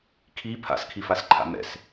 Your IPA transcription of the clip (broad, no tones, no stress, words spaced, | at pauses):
kʰi pʰa̰skʰifasǃʰa̰ mɛ̰s